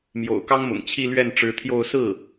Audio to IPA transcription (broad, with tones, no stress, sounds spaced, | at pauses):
m j o̰˨˩ ʊ̯ k ɑ˥ ŋ m ʊ̰˨˩ ŋ t͡ɕʰ i˥˧ l ɥ ɛ˥˩ n ʈ͡ʂ ɻ̩˧˥ t̪ʰ j o˥˧ ʊ̯ s ɹ̩˥˩